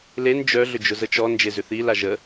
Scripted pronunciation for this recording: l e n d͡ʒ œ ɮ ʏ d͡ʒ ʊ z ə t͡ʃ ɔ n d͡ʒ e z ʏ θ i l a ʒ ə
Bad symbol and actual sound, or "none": none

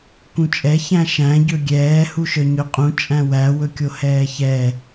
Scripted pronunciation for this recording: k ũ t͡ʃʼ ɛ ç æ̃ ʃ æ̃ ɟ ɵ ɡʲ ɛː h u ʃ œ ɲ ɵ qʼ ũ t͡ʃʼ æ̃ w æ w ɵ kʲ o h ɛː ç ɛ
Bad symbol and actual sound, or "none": none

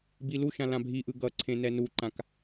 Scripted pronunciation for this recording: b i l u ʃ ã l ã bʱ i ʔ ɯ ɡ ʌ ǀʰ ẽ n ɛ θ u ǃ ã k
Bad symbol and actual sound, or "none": θ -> n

